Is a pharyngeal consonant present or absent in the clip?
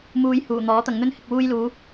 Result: absent